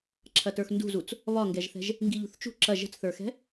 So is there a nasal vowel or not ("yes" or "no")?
no